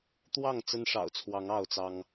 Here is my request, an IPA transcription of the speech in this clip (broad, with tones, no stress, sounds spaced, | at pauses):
t̪ w ɑ˥˨ ŋ t͡s ə˦ n ʂ ɑ̰˨˩ ʊ̯ t͡sʰ w ɑ˨˦ ŋ ɑ˥˨ ʊ̯ t͡s ɑ˦ ŋ